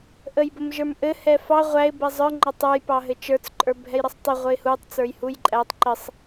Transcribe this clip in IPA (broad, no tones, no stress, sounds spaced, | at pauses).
ʔ ə j b ə m ʒ ə˞ m ʔ ɘ h ɛ f ɑ ʁʷ æ ɪ̯ b ɛ zˤ ə˞ ŋ͡ǃ ɑ tˤ ə˞ j p ɑ ɦ ɘ t͡ʃ ə˞ t͡s ǃʼ ə˞ bʱ ɛ j ɾ ə sˤ tˤ ɘ ʁʷ ə ɪ̯ h u tˤ t͡s ə˞ j h u j ǃʼ æ tˤ ǃ ɘ sˤ